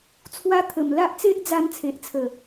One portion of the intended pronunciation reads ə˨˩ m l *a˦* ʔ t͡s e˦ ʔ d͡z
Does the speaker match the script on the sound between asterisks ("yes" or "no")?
yes